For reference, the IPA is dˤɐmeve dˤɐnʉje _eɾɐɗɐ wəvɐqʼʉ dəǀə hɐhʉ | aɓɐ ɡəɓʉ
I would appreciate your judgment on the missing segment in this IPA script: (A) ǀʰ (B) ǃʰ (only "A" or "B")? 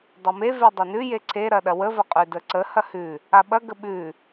A